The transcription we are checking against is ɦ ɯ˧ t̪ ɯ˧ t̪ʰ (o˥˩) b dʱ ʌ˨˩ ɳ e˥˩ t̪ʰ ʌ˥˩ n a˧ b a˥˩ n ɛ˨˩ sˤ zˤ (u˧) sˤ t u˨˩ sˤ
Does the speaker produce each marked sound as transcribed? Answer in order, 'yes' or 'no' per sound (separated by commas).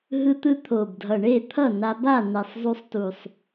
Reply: no, yes